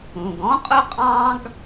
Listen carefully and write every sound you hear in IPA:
ũ˩ ɡ ɔ̃˥ qʼ ʊ˥ qʼ ɑ̃˥ ɡ

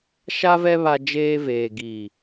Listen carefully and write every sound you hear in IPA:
ʃ a˦ v ɛ˦ β a˦ d͡ʒ eː˦ v eː˨ ɡ iː˨

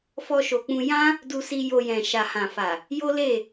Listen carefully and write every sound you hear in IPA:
f ɔ˧ ʃ o˨ k͡p ũ˧ j ã˦ | d u˧ s i˧ j o˧ j ɛ̃˨ ʃ a˨ h ã˨ f a˨ | j o˦ l e˦˨

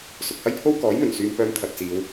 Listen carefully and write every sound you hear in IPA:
s ʊ˨ k̚ h ɐ˥ j pʰ o˥ w k ɔː˨˥ j m ɵ˨˩ n s yː˧ m p œː˧ m t̪ʰ ɐ˨ t̚ t͡s iː˨˧ w

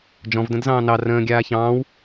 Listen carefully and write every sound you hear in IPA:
d͡ʒ ɔ̃ v d ə̃ d z ɑ̃ː n ɑ r ə̃ː ɡʲ aː ç ɑ̃ː w

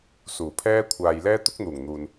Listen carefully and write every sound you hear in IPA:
s uː˨˩ pʰ ɛː˥ kʷʰ aː˧ j l ɛː˥ t̪ ʊ˥ k̚ n̪ uː˨˩ ŋ n̪ uː˨ n

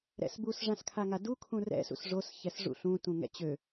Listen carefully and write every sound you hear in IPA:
ɾ ɛ̰ s b u s ʐ ã s kʰ a ŋ a d u kʰ ũ r ɛ̰ s ṵ s ʐ o s ç ɛ s ʐ ṵ ɬ ũ t ũ ŋ ɛ̰ t͡ɕ ø

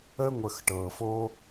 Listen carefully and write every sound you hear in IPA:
ə˥ ŋʷ ə˧ x ʈ ɤ˧ f o˥

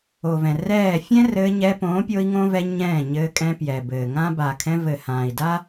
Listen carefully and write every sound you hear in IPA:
o˨ v ɛ̃˨ r ɛː˦˨ fʲ ɛ̃˦ r ɘː˧ ɲ ɛː˧ p õː˨˦ pʲ o˦ i̯ ŋ õ˦ v ɛ˧ ɲ ɛ̃ː˦˨ ɲ ɘː˧ kʼ ɛ̃˧ p j ɛ˨ b ɘː˨ ŋ ã˦ b a˨ kʰ ɛ̃˧ v ɘ˨ h ãː˨ i̯ d a˦

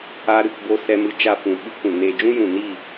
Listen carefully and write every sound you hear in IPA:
a˦ ɾ ɨ˧ k b o˦ s ɛ˧ m ɨ˧ t͡ʃ a˧ f ũ˨ ɓ ɨ˦ k ũ˨ n eː˧ d͡ʒ ũ˦ j ũ˨ n iː˦˨

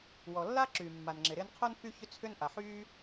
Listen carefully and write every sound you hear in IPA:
w ɔ˩ lː a˥ ǁ yː˩ mː a˩ n ŋ͡ǁ ɪ˩ ɾ ɪː˥ n qʰ o˥ n f y˥ ç ʏ˥ t͡sʰ ʏ˥ n ʔ a˩ ħ yː˥

